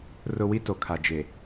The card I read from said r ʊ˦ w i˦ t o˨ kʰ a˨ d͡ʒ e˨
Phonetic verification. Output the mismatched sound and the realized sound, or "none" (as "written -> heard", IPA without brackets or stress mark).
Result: none